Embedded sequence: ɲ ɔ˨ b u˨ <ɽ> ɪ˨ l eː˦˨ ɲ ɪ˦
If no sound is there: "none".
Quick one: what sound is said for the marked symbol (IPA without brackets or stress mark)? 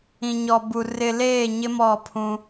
r